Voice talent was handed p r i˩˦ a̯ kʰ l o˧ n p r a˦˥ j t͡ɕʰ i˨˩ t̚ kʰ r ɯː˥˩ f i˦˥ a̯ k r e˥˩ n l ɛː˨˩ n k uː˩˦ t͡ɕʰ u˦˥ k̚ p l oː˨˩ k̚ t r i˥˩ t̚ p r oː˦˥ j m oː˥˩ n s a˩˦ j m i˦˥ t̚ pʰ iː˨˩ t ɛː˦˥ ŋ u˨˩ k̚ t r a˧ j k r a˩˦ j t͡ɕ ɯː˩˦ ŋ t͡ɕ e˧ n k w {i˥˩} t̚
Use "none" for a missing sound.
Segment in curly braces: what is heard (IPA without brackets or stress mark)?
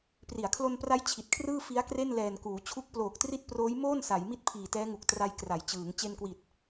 i˨˩